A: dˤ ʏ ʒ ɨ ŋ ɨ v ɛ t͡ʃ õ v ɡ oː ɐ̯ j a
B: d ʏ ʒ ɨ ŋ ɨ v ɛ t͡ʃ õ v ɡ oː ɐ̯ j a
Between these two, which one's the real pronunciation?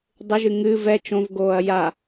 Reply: A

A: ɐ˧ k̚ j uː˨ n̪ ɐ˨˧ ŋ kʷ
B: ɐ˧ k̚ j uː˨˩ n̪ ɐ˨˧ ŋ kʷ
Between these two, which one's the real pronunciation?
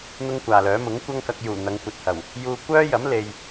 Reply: B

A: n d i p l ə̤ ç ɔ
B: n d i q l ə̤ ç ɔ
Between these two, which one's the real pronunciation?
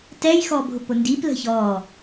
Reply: A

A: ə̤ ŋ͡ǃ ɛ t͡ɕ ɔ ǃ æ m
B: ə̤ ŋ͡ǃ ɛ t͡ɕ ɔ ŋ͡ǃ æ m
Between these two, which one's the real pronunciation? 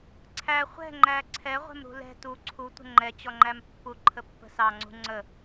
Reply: B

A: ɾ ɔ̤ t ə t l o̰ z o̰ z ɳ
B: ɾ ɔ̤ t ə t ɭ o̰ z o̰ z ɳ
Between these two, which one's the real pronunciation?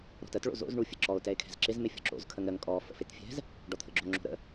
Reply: B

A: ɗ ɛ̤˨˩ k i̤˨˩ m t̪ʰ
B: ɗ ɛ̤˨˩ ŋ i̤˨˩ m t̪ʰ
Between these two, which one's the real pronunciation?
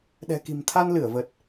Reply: A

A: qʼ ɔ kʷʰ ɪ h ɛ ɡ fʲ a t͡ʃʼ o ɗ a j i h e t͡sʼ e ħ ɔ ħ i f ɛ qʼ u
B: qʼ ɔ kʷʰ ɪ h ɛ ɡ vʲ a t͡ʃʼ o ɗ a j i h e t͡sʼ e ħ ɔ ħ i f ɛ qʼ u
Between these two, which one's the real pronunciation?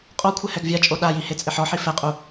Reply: B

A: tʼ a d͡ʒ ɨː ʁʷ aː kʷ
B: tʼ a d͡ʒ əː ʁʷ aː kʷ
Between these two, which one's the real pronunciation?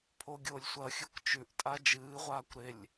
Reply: A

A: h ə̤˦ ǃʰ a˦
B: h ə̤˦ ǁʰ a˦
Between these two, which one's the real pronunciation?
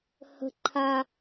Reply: A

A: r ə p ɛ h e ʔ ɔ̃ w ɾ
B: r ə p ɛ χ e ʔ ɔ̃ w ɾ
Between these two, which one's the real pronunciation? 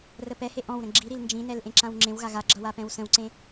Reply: A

